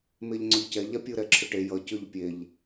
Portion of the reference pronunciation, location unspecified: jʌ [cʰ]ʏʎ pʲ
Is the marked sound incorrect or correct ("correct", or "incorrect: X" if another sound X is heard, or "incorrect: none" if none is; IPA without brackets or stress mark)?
incorrect: c